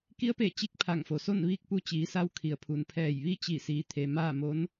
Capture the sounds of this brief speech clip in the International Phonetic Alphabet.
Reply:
ki˧˥ə̯pe˧˩ t͡ɕi˧˥k̚pʰa˧˩ŋfo˩so˥˨n ʋiː˥˨k̚pu˧t͡ɕiː˩˧sa˧w kʰi˩ə̯pʰu˩npʰɛː˧˩j ʋi˥˨t͡ɕi˧˩siː˩˧t̪ʰe˩ maː˥˨mo˧˥n

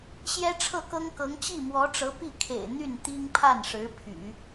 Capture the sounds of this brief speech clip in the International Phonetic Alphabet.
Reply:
ɕjɛ˥ʈ͡ʂʰɤ˥˩kɤ˥ŋkɤ˧˥ŋ t͡ɕi˥˩mwɔ˧˥ʈ͡ʂɤ˧˥ pi˥˩kʰḛ˨˩ɪ̯ n̪y˥˩nt̪i˥ŋpʰa˥˩nʂɻ̩˧˥ pʰy̰˨˩˦

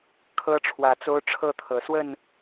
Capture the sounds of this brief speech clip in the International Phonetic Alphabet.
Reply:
kʰɤ˦ʈ͡ʂʰwä˨˦t͡so˦ʊ̯ ʈ͡ʂʰɤ˥˨t̪ʰɤ˨˩ swə˥˨n

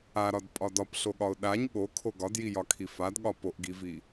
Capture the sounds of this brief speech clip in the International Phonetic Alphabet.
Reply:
aɾɒdpʼɒ dɒpɬoɠɒʊ̯ ɗaɲ ɠokʰo ɡɒdjijɒkʰi fadɠɒ poʔɡivi

